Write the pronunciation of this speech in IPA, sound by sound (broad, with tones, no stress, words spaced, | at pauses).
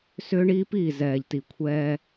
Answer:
sʏː˦ɳiː˦piː˦˨ zɛː˨ʎti˨ kʷʰɛː˦